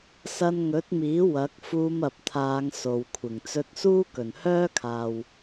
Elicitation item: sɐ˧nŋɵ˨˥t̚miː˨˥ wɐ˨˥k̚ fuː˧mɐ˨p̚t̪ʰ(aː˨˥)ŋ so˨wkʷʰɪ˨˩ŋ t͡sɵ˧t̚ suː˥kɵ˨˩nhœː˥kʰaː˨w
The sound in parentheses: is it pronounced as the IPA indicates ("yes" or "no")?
no